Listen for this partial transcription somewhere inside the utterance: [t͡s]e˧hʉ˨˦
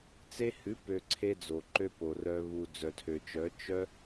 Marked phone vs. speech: correct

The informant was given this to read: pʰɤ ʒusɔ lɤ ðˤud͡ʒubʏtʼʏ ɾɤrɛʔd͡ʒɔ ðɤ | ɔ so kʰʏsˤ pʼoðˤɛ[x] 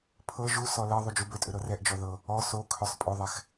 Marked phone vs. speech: correct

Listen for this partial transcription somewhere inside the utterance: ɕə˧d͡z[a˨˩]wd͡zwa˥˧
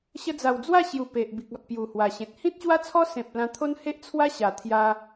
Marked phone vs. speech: correct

